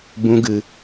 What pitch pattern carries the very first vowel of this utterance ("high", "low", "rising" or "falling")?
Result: high